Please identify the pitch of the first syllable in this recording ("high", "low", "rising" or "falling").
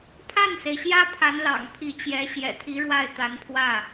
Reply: falling